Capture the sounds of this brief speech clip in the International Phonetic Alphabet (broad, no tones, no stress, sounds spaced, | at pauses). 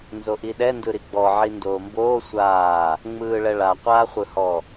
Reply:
n z o ʔ i ɗ ɛ n d ɯ ɾ i ɡ͡b ɔ ʕ i n d oː m b oː sʷ aː | ŋ͡m ɯː ɭ ɛ ɭ a qʷ aː χʷ ɯ h ɔ